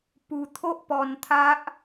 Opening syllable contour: low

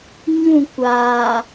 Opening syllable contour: falling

